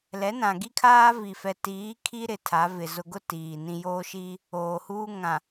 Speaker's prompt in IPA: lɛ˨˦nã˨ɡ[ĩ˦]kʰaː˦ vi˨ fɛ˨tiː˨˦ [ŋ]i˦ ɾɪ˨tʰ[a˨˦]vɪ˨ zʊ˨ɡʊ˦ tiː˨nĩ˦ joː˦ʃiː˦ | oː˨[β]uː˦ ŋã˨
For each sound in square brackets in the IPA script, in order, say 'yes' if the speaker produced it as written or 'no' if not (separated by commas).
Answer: no, no, yes, no